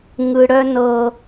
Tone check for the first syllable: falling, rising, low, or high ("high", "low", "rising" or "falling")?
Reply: low